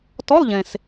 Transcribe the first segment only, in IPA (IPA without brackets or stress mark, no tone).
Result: t